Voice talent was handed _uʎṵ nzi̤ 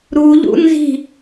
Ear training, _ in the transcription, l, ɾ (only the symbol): ɾ